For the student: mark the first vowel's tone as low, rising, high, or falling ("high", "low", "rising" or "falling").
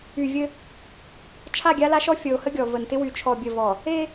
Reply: low